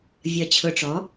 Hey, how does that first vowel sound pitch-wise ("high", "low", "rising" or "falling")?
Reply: low